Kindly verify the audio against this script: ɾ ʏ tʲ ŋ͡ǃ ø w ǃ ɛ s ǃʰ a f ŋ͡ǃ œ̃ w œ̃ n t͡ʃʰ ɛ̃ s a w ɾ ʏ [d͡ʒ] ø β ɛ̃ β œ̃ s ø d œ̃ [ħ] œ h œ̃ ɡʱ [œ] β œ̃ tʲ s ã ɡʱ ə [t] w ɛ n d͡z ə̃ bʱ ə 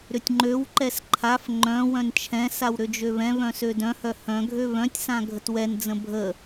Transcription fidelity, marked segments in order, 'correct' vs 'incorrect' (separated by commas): correct, incorrect, incorrect, correct